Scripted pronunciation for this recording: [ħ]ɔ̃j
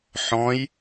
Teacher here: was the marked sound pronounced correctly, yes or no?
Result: yes